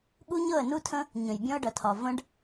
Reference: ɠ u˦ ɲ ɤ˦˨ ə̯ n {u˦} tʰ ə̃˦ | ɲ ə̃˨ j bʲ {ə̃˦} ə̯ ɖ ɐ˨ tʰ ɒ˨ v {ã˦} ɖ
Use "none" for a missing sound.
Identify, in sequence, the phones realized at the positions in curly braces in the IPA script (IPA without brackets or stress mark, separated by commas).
u˦, ɔ̃˦, ə̃˦